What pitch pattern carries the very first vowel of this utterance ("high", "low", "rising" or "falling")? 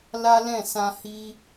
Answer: high